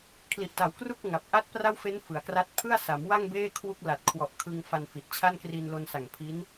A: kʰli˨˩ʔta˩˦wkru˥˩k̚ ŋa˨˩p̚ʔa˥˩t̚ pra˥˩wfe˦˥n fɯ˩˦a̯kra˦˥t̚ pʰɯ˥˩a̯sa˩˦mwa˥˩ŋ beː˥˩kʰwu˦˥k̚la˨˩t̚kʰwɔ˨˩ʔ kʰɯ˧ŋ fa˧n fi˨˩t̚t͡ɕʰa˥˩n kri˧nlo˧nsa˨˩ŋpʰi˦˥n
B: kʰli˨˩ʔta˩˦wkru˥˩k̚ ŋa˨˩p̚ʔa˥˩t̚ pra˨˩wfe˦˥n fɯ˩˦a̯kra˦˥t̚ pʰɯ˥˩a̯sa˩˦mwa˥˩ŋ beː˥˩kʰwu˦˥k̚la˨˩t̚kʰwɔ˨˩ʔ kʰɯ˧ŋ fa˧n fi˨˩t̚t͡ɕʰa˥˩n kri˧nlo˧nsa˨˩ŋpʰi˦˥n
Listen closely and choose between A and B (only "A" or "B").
A